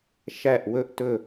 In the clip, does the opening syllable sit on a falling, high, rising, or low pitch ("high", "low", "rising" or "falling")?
falling